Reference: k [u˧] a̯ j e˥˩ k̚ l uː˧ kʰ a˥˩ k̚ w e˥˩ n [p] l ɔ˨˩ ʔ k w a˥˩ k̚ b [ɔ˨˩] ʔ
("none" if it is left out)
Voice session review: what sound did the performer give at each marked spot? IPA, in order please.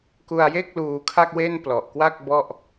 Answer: u˧, p, ɔ˥˩

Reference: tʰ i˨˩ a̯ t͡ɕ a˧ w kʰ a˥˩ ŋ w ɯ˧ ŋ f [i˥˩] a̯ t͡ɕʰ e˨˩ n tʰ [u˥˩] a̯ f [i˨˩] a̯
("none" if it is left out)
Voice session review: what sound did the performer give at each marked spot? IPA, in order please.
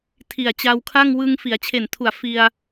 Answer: i˩˦, u˨˩, i˧

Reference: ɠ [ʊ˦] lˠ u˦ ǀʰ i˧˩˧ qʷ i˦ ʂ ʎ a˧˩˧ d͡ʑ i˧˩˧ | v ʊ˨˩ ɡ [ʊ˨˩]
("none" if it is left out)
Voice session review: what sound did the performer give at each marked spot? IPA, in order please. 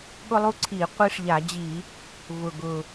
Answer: ʊ˦, ʊ˨˩

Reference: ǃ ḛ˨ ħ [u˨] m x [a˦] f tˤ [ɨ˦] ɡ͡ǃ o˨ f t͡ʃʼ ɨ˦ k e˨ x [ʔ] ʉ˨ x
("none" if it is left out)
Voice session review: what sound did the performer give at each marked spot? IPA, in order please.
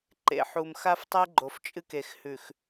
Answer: u˨, a˦, e˦, h

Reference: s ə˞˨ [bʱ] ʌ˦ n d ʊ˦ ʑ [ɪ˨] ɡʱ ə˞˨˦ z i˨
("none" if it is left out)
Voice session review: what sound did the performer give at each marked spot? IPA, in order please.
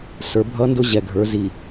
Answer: bʱ, ɛ˨

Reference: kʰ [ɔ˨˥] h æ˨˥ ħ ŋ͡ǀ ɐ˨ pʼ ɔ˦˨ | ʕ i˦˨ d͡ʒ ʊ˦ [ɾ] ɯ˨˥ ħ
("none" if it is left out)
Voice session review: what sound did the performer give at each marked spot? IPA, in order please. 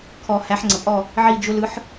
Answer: ɔ˨, l

